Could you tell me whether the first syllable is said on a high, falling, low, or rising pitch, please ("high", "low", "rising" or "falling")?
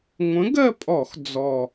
rising